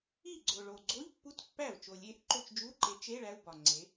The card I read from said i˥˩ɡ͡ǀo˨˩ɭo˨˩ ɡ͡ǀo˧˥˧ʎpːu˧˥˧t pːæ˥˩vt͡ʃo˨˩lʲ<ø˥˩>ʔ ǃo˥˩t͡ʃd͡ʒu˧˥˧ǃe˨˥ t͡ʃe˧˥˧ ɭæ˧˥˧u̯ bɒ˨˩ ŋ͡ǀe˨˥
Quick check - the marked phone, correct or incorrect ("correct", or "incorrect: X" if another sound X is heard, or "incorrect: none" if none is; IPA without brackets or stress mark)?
incorrect: e˥˩